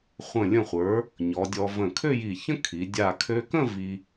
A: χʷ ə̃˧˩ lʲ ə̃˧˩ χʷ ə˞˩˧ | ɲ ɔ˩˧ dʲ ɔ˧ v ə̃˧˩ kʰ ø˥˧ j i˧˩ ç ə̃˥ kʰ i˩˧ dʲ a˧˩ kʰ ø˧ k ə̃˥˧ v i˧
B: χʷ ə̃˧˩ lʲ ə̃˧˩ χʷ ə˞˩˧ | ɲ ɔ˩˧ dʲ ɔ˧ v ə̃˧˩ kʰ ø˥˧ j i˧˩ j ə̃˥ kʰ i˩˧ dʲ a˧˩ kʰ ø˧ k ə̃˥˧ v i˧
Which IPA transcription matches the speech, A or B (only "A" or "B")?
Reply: A